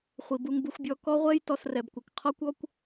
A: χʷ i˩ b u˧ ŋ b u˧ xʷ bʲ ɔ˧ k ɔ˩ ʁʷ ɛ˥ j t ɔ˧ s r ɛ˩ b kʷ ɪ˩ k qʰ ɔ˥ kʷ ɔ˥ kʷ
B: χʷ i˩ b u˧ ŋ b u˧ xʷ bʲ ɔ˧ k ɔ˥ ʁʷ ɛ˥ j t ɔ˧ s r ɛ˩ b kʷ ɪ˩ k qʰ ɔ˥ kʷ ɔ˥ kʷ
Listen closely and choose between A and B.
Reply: B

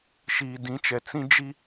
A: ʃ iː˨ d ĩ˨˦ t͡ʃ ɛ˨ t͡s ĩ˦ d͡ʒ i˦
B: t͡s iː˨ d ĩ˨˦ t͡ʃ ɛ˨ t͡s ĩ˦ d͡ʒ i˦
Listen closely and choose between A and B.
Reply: A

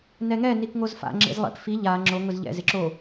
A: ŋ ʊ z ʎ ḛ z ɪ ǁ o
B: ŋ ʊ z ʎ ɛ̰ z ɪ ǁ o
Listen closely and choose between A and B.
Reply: B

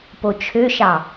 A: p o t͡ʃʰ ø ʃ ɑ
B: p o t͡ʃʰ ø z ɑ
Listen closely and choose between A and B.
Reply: A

